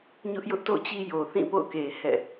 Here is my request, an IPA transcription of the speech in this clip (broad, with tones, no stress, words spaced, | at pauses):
ɲʊ˦ʔjʊ˦ʔto̰˦˨t͡ɕi˦ jo˨θĩ˦˨ po̰˦˨ʊ̯ke˨ hɛ̰˦˨